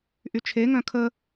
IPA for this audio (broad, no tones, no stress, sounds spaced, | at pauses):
ʔ y t͡ʃʰ e ŋ œ̃ kʰ ə